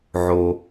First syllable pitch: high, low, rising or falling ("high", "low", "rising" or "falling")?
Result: low